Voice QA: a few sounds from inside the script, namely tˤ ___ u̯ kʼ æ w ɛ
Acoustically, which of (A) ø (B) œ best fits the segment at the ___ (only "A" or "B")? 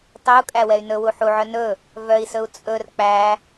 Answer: A